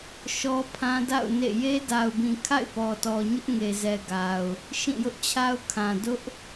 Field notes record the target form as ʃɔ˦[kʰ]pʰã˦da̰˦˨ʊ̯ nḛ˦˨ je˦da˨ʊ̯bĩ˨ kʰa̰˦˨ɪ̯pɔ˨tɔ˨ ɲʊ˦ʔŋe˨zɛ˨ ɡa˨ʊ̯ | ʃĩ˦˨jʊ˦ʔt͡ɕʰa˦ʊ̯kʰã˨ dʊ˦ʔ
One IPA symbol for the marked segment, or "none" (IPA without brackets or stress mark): none